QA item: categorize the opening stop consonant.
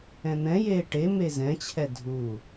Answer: plain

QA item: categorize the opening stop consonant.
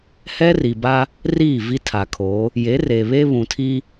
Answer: plain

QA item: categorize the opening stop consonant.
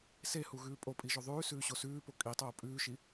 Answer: ejective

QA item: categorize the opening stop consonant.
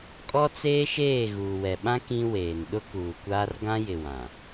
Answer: ejective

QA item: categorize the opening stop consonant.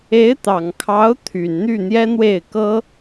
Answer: plain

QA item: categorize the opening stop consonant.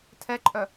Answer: aspirated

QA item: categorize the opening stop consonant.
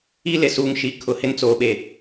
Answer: aspirated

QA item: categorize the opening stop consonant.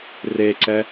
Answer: click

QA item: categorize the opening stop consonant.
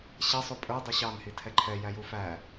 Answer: ejective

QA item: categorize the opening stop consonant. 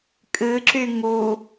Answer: ejective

